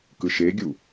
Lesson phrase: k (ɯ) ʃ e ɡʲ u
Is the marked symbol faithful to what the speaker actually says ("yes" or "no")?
yes